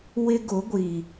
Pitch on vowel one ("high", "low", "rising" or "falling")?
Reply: high